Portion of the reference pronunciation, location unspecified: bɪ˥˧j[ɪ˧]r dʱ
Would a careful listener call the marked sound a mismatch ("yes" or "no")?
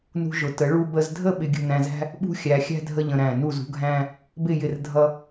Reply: yes